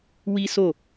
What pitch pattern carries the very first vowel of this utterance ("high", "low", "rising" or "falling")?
high